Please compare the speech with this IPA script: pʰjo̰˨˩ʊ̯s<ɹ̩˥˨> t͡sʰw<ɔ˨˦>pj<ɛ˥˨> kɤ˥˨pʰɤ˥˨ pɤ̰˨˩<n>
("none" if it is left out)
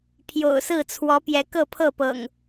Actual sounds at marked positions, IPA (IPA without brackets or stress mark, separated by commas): ɹ̩˥˨, ɔ˨˦, ɛ˨˦, ŋ